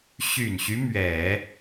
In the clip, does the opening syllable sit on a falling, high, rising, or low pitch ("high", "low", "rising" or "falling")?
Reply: low